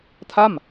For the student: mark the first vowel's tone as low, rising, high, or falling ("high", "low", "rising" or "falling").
falling